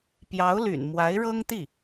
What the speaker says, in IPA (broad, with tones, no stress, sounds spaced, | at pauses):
p j ɑ˧˥ ʊ̯ l y̰˨˩ n m w a˧˥ ɪ̯ ɻ ɤ˥ ŋ t̪ i˥˩